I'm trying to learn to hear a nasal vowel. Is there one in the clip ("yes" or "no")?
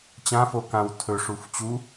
yes